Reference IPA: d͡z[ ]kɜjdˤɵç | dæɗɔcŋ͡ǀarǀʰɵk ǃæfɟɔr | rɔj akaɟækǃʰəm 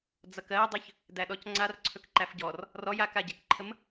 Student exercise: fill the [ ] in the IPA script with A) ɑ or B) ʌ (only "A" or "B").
B